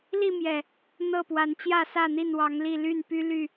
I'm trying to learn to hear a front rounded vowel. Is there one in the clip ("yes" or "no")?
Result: yes